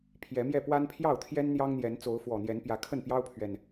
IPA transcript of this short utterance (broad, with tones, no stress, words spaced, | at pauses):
pʰjɛ˨˦mjɛ˥˨ pwa˦npʰjɑ˥˨ʊ̯t̪ʰjɛ˦n n̪jɑ˦ŋn̪jɛ˨˦n t͡so˨˦ʊ̯fwɔ˨˩n̪jɛ˨˦n pjä˨˦kʰə˥˨npjɑ˦ʊ̯pʰɥɛ˨n